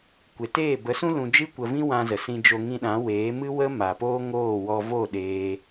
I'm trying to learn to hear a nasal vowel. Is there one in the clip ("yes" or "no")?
yes